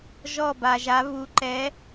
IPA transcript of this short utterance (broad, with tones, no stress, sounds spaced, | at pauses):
ʒ ɔ˥˧ b a˧ ʒ a˧˥ β u˧ ǃ ɛ˧˥